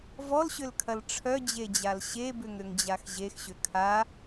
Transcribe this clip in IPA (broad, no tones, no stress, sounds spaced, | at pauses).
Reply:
v ɔ l ɕ ʏ l kʰ ɐ l ʈ͡ʂʰ œ d͡ʑ e d͡ʑ a l ɕ e b ʏ ŋ ɾ ʏ ŋ d͡ʑ a x ʑ e x ɕ ʏ kʰ a